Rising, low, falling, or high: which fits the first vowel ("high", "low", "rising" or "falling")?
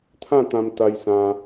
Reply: falling